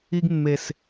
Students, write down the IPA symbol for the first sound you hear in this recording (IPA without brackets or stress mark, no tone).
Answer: i